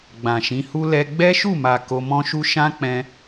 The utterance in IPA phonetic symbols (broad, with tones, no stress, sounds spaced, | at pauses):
ɡ͡b ã˨ ʃ ĩ˨˦ h u˦ l ɛ˦ ɡ͡b ɛ˦ ʃ u˦˨ m a˨ k o˧ m ɔ̃˦ ʃ u˦ ʃ ã˦ k͡p ɛ̃˧